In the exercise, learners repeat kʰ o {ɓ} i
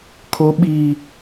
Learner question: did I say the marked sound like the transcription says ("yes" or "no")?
yes